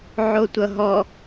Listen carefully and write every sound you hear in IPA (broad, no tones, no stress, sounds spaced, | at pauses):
ʕ o tʷ ʌ ɦ ɔ